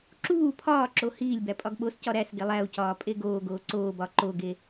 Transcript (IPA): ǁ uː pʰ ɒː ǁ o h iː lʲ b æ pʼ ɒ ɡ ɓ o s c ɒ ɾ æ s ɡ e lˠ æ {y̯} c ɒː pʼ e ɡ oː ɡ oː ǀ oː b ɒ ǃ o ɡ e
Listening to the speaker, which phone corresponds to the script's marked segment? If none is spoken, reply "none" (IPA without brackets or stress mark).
u̯